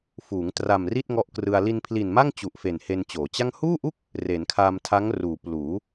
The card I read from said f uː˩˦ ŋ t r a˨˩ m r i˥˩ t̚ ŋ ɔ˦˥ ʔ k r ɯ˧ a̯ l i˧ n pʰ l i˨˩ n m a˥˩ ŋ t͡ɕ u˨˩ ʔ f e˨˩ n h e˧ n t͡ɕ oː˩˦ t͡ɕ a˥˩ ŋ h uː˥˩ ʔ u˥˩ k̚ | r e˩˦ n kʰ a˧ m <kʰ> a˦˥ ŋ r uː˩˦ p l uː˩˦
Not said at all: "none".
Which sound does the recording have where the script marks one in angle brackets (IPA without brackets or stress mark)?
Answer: tʰ